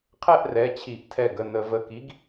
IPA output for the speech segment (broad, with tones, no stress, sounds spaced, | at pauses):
qʰ ɛ˥˧ ʔ r ɛ˩˧˩ t͡ɕʰ i˧˩˧ ʔ tʰ ɛ˧˩ ɡ ə˩˧˩ n ə˧˩˧ v ə˩˧˩ k i˨˥ ɡ